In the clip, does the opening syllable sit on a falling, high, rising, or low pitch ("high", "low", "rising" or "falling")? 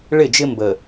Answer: falling